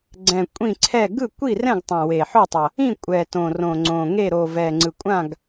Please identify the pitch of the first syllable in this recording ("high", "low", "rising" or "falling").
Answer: low